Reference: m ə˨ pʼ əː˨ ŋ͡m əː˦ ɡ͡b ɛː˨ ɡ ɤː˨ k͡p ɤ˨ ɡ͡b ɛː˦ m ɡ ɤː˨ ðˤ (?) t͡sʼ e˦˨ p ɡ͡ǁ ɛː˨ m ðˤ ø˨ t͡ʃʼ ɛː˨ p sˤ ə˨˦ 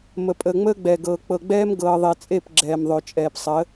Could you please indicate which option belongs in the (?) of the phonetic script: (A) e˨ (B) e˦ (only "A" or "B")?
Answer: A